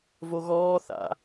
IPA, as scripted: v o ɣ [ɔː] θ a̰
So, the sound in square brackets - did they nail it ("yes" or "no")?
yes